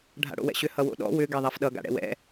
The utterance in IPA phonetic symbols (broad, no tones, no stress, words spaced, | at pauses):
ɖʱa̰ɽo̰wɛ̰ɕʏ hʌwo̰ɗɔ̰ wʏ ɡɛðˤafɗʌ ɡa̰ɽɛ̰wɛ̰